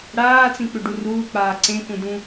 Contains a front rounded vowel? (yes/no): yes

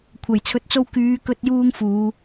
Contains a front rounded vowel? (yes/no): yes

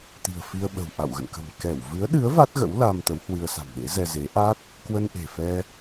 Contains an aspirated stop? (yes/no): no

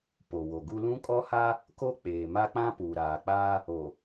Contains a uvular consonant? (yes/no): no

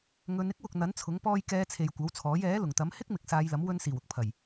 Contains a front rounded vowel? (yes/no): no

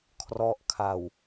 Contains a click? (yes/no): no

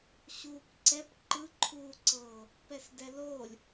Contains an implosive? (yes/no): no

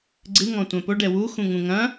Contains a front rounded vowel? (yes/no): no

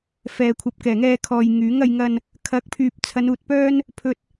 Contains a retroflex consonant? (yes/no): no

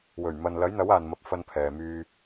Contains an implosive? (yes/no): no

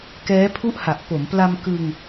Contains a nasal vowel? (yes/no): no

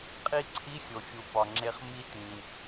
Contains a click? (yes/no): yes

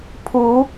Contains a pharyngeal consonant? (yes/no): no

